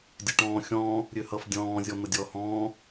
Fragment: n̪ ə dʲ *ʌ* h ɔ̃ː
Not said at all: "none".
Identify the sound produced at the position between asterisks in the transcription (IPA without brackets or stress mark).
ɔ